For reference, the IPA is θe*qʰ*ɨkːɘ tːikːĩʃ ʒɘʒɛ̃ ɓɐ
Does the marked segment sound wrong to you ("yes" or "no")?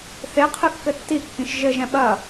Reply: no